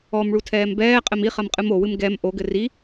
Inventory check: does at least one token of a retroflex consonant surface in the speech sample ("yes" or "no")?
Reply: yes